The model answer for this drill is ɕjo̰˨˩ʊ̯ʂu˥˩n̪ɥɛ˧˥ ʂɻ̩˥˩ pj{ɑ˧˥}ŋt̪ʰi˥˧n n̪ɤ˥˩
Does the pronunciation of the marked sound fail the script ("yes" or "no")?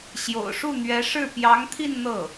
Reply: no